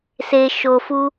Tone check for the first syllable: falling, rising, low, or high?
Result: low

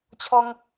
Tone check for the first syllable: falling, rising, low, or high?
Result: high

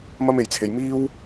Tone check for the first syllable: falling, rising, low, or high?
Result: high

